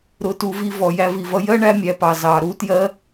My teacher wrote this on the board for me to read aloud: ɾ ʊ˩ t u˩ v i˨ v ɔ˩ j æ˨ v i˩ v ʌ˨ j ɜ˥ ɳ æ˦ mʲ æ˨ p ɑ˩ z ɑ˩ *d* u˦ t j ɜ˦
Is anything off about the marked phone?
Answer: yes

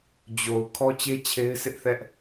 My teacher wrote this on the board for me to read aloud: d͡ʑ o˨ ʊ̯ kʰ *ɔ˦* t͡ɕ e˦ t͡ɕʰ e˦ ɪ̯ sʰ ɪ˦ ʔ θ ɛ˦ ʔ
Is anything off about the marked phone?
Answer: no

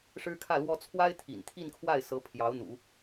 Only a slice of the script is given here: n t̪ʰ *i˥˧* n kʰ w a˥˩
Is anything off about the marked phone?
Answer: no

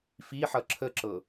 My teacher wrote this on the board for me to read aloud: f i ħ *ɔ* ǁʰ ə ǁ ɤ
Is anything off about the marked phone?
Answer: yes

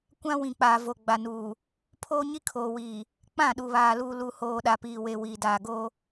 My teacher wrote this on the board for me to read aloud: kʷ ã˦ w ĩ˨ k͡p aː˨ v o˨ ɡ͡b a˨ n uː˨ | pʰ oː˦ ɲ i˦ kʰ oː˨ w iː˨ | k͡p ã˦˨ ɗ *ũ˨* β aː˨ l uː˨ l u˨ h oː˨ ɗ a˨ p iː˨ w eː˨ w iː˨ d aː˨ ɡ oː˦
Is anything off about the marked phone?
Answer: yes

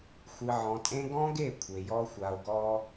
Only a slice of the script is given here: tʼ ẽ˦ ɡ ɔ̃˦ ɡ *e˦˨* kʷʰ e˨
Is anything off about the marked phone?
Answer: no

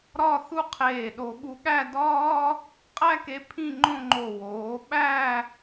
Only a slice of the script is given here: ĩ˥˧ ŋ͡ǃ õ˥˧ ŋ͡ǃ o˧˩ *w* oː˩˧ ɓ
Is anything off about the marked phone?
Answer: no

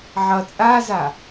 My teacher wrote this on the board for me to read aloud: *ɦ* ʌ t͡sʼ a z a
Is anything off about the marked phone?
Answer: yes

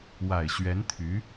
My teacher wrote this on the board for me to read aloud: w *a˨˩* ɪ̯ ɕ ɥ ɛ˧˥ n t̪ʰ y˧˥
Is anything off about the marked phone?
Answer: no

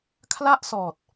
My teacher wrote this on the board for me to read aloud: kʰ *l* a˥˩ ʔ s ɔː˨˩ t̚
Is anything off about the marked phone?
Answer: no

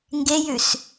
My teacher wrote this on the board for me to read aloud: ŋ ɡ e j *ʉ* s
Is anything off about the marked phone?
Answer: no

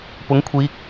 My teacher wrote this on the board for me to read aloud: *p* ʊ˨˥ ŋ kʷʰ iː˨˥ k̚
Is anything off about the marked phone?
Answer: no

